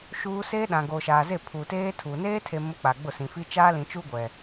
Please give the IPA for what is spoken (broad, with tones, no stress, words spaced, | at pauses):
ʃuː˦ seː˦ɗã˨ ɡoː˨ʃaː˨ze˦˨ pʰuː˨teː˦ tʰuː˨ neː˦tʰe˨ mʊ˦k͡pa˨ ɡ͡bʊ˦˨sĩ˨fi˦ t͡ʃaː˦lĩ˨t͡ʃu˦ ɡʷɛ˨